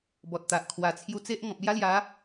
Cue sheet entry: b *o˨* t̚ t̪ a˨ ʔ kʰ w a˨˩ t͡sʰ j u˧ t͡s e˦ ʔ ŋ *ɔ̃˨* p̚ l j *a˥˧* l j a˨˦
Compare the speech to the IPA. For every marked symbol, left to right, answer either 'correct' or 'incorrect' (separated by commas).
incorrect, correct, incorrect